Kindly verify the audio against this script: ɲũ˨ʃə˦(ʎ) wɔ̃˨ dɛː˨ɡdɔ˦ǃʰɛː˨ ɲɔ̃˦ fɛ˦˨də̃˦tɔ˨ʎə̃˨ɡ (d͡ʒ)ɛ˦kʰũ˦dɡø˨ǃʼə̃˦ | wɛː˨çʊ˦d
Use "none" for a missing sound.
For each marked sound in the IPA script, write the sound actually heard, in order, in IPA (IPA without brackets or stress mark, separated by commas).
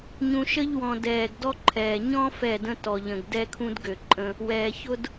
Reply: ʎ, d